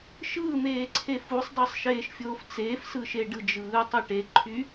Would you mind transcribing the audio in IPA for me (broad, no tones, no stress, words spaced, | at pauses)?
ʃɯːn̪eːǀʰe fusˤdˤɯsˤʃeːʃfʲoːf t͡seːfsɯʃe ɖɯd͡ʒɯː tˤiʈeǃʰy